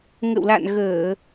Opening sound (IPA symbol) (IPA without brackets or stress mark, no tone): ŋ